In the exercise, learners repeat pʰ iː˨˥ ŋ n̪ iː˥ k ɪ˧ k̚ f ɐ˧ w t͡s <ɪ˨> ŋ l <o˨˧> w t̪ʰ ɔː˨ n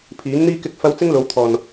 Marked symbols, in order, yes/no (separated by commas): no, yes